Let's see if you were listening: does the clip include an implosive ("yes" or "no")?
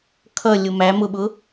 yes